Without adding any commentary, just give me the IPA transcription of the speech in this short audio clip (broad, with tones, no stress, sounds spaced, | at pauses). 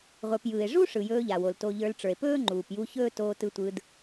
ʁʷ ə˞˧ p j ɯː˨ e̯ ʐ u˦ ʂ ɯ˨ j ɵː˧ ʎ a˨ w o˨ l t o˧ ʎ ə˞˧ l ʈ͡ʂ ə˞˨ e̯ p ɵː˦ ŋ͡ǃ uː˨ p j u˧ ç ɵː˦ t oː˧ t ɯ˧ tʷ ɯ˧ d